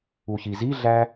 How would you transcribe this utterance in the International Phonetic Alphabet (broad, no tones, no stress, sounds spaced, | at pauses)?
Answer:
u ç i z i ɮ æ